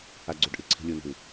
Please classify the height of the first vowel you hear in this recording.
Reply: low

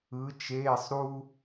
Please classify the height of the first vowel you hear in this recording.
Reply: high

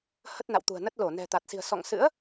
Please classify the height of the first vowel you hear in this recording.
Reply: mid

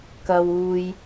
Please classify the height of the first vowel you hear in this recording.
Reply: low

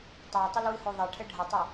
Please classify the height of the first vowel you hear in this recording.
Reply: low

